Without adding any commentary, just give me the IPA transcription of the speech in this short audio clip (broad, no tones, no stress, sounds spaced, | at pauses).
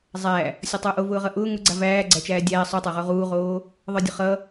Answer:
zˤ æ | sʲ ɔ tˤ ʊː ʔ o v ʊː ʁ ʌ ʔ ʊː ŋ ʊ ɡ͡ǀ a v æː ɡ͡ǀ æ t͡ʃ æː dʲ æː sˤ u tˤ o ʁ o ʁ uː ʁ oː | ðˤ ə˞ dʲ ʊ χ ʌ